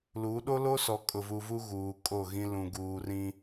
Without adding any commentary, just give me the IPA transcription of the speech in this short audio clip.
l u˨˦ ɗ o˦ l o˦ s ɔ˨ kʼ ʊ˨ v u˨ v u˦ ɣ uː˨ kʼ o˦˨ ɣ ĩ˦ l ũ˨ ɡ uː˨ r ĩ˦

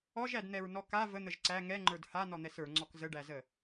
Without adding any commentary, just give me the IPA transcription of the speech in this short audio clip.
ɔ ʒ æ d n̪ ɛ ɹ n ɔ k a v ə n̪ ə ʒ ǀ æ ŋ ɛ ŋ͡ǃ ə˞ d h a n ɔ n̪ ɛ s ə˞ ŋ͡ǀ ɔ k z ə ɖ æ z ə

